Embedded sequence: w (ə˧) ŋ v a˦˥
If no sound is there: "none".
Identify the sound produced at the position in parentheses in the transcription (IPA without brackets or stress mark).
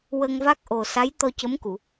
ə˧